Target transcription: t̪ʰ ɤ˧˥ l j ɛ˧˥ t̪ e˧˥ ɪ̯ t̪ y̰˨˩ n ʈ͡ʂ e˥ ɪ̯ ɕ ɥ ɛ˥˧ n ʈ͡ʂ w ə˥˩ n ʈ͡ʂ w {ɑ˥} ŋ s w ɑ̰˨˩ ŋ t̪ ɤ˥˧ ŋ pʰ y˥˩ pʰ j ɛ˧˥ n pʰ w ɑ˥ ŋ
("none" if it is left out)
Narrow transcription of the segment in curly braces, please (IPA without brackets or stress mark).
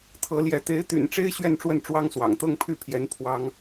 ɑ˥